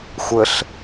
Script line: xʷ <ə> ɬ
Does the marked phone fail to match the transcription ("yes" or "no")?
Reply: no